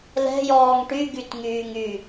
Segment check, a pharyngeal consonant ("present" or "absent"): absent